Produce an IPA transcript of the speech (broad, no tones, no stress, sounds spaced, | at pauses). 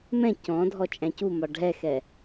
m ɛ̃ c ɔ̃ dʱ ɔ t͡ʃʼ æ̃ c u m ɒ ɖʱ ɛ x ɛ